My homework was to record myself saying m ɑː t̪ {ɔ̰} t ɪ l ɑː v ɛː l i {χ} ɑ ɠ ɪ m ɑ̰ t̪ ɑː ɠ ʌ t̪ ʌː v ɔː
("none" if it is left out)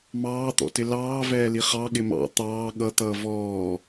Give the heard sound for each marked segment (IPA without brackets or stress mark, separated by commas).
ɔ̰, χ